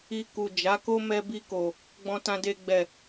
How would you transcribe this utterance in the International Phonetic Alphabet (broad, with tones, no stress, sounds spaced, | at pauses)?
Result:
i˧ k u˨ d͡ʒ a˨˦ k o˦ m ɛ˧ b i˧ k o˨ | ɡ͡b ɔ̃˧ t ã˧ d e˧ ɡ͡b ɛ˨